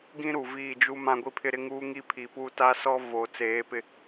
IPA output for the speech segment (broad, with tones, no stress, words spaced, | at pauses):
ɡĩ˦ɾu˨viː˦˨d͡ʒu˦ mã˦ɡʷi˦pʰɪ˦ɾɪ˦ ŋuː˦ ŋi˦pʰiː˨puː˦ ta˦sɔ˦ vo˨ t͡seː˨˦pɪ˦